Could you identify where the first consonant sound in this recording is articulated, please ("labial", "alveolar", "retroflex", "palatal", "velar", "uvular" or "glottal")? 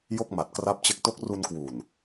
palatal